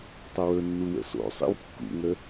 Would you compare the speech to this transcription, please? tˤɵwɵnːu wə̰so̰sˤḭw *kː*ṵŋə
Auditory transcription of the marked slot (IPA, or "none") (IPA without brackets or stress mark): kː